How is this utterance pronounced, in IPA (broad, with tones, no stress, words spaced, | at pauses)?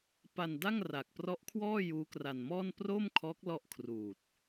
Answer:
pa˧nda˥˩ŋ ra˨˩k̚prɔ˦˥ʔkʰwɔː˥˩ juː˦˥kra˧nmɔː˥˩n proː˥˩mkʰɔː˦˥k̚ lɔ˥˩ʔkʰruː˨˩t̚